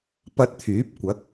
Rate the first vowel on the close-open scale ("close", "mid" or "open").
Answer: open